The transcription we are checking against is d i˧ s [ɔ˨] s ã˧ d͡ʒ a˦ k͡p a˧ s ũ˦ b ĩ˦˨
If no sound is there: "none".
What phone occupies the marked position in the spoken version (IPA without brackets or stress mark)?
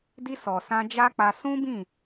ɔ˨